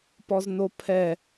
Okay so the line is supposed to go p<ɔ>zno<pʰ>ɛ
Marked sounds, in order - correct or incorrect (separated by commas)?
correct, correct